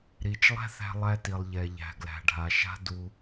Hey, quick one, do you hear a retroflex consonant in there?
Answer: yes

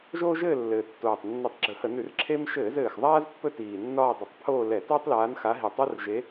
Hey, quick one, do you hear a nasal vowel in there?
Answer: no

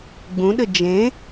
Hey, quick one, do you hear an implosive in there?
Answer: yes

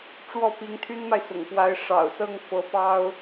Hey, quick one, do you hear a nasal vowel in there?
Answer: no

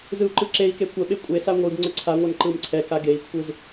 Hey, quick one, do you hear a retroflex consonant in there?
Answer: no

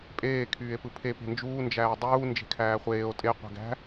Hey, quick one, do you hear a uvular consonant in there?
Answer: yes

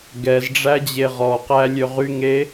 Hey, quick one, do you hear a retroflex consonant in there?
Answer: yes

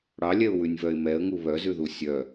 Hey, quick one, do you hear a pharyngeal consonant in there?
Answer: no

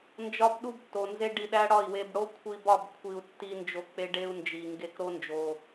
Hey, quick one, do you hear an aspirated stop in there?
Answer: yes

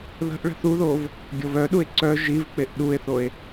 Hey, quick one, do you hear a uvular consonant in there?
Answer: no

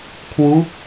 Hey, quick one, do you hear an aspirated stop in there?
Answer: yes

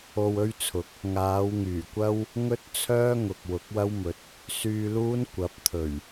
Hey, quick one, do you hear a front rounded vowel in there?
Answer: yes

